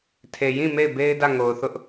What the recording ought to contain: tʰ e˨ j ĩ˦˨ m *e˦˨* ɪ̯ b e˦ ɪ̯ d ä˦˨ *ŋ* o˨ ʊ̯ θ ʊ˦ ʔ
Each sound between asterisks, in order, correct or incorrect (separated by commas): correct, correct